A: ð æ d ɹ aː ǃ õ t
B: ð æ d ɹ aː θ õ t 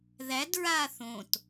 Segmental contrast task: B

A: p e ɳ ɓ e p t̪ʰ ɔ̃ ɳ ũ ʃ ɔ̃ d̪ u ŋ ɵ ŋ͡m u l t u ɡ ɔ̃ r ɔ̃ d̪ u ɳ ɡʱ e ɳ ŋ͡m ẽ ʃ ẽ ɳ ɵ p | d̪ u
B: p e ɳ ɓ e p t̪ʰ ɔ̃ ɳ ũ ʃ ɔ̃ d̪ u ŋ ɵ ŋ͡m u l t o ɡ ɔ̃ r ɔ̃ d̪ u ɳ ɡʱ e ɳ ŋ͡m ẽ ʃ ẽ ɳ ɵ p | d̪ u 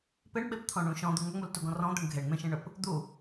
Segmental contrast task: A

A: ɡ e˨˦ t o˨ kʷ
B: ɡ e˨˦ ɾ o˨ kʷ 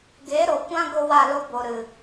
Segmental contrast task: B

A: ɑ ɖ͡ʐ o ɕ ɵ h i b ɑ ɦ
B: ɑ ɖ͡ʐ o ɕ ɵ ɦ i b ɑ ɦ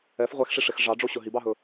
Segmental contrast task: B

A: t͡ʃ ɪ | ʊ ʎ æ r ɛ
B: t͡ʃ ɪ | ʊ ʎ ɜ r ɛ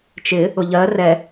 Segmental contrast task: B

